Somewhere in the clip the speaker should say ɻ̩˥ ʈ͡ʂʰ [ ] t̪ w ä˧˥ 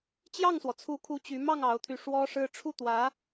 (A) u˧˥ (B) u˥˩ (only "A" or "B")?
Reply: B